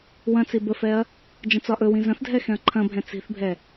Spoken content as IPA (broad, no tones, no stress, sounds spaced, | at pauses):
w ɐ̃ t͡s i b ə f ɛ ɐ̯ | d͡ʒ ə̃ t͡s ɒ ʔ ɵ w ĩ z ɐ̃ θ dʱ ɛ x ɛ̃ ɐ̯ ǃʰ ɐ̃ bʱ ɛ̃ t͡s i̤ θ bʱ ɛ